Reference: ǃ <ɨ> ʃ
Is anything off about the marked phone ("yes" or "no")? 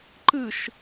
no